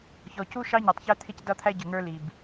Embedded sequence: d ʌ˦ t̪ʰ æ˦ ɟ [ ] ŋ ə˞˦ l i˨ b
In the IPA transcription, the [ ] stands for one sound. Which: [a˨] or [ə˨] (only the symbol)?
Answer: ə˨